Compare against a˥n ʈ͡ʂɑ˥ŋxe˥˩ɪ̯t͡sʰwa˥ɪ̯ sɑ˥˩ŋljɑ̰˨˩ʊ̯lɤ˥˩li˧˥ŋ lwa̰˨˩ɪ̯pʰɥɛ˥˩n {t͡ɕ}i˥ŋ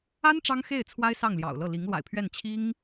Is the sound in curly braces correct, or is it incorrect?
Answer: incorrect: t͡ɕʰ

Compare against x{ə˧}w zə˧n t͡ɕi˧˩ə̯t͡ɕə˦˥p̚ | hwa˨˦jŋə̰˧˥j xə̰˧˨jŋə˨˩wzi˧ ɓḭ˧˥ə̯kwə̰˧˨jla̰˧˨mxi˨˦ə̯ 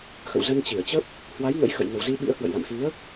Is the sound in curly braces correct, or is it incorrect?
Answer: incorrect: ə̰˧˨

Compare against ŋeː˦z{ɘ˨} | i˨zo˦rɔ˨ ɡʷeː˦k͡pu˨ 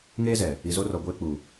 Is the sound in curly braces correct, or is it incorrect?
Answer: incorrect: ɛ˨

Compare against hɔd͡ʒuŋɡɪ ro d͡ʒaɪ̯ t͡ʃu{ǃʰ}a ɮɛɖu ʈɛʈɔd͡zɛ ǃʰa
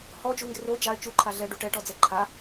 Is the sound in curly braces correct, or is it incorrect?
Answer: correct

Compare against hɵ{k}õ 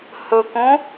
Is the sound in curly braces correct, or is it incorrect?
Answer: correct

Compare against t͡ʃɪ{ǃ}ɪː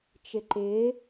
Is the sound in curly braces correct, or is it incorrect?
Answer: correct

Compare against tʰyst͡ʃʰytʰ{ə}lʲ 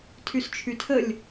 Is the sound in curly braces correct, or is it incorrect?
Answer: correct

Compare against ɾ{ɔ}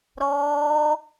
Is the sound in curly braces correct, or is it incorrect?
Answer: incorrect: ɔː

